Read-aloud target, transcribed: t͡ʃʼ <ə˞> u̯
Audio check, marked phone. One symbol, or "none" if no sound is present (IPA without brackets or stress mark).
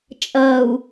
ɐ